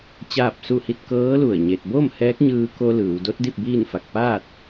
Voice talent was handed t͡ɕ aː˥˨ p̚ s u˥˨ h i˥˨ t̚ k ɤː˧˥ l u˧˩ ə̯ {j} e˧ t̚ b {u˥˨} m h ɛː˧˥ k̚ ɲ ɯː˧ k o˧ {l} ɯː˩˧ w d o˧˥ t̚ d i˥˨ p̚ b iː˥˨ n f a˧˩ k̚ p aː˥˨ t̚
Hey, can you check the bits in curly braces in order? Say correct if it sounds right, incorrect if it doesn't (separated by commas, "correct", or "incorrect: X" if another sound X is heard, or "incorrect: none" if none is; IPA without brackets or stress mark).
incorrect: ɲ, incorrect: o˥˨, correct